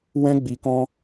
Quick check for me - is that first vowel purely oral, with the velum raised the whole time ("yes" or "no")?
no